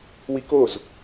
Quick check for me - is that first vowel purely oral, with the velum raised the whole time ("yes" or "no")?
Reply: yes